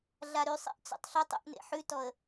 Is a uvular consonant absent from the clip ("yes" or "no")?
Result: yes